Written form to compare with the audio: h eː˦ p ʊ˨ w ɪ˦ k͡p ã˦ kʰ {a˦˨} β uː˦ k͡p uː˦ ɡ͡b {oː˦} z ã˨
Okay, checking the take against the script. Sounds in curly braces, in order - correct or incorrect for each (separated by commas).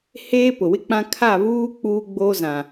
correct, correct